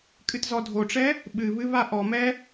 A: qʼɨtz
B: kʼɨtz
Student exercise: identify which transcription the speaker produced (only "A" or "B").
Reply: B